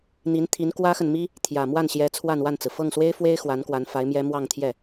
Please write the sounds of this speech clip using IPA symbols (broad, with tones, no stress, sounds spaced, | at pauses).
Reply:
n̪ i˧˥ n t̪ʰ i˧˥ n k w ä˥ x ə˨ n m i˥ | t̪ʰ j ä˨˩ m w a˥˩ n ɕ j ɛ˧˥ t͡sʰ w a˥˧ n w a˥˩ n t͡s ɹ̩˩ f ɤ˥˩ ŋ s w e˥ ɪ̯ f w e˥ ɪ̯ x w a˧˥ n k w a˧˥ n f a˧˥ ɪ̯ m j ɛ˥ m w ɑ˥˧ ŋ t̪ʰ j ɛ˥˩